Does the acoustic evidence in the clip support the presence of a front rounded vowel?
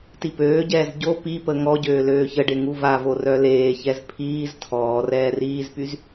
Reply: yes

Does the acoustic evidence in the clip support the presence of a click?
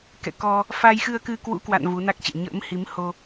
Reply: no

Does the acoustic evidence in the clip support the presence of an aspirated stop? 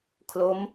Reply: yes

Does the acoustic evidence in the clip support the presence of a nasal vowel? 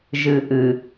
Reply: no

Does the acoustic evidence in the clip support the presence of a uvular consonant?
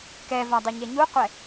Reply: yes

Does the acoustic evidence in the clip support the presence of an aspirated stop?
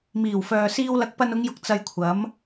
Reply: yes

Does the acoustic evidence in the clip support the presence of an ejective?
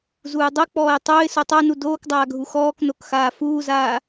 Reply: no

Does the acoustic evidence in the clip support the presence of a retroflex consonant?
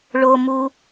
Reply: yes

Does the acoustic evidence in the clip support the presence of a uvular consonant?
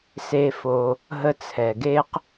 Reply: yes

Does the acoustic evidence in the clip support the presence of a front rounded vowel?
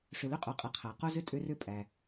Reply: yes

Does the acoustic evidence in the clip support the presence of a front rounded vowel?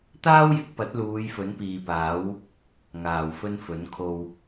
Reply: no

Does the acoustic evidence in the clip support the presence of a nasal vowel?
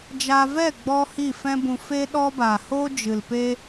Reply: yes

